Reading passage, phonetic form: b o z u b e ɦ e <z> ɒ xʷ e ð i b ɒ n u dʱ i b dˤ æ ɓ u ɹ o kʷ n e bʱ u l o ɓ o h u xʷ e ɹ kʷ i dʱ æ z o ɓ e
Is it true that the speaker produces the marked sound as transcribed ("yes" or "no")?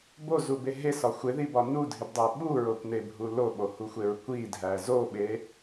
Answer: no